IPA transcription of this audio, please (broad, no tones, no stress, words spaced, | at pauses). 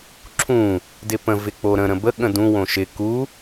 ǁʰũ | dɪpə̃ vɪk͡poɾə̃ ɾə̃bə ɠə̃dũ wõʃɪ ku